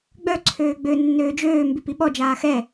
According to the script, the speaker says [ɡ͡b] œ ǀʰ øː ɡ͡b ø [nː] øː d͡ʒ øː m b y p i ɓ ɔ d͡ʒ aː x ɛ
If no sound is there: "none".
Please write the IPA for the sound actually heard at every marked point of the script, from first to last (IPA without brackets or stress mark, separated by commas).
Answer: ɡ͡b, nː